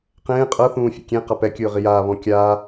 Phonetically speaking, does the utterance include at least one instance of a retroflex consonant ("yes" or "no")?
no